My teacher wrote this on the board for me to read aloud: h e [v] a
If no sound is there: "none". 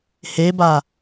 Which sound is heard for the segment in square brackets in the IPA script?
b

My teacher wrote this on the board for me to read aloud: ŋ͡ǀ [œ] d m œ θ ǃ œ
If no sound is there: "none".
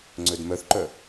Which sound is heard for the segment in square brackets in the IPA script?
ø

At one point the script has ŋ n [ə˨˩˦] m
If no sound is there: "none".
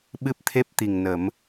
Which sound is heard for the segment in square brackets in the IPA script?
ə˨˩˦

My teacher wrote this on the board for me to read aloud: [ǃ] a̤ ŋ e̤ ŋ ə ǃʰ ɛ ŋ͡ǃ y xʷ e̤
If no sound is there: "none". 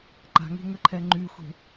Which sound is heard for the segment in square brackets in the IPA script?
ǃ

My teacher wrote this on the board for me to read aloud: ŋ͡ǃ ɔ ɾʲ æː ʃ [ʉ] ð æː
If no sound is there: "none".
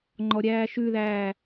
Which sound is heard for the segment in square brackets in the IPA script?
ʉ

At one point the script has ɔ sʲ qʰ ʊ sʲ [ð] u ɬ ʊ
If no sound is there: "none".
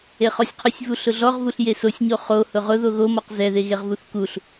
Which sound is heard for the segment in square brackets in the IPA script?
v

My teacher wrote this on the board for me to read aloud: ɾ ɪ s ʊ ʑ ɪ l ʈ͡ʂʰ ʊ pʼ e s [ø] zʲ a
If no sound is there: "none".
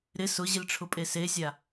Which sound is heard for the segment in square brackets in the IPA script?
e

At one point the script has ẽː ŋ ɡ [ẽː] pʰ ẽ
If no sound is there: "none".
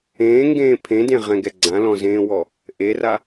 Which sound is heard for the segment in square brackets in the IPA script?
ẽː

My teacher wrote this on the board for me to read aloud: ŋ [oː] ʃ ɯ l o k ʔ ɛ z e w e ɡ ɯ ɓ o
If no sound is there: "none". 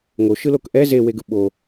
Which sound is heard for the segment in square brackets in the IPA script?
o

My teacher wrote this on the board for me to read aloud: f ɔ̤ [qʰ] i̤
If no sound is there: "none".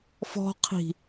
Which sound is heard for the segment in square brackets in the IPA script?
qʰ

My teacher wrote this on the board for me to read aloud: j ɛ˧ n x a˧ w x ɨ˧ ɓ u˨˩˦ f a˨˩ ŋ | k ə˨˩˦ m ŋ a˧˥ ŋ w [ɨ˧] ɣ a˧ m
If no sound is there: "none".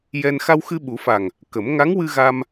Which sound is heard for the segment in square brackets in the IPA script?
ɨ˧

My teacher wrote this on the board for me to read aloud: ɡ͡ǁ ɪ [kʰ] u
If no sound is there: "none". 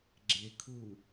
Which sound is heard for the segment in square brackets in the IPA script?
kʰ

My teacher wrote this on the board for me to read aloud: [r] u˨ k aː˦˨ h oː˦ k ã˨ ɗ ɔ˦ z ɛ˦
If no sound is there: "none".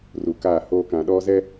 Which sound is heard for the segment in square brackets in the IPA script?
r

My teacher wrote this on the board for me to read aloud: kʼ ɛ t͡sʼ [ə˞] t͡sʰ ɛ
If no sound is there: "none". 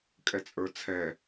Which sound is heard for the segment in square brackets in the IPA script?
ə˞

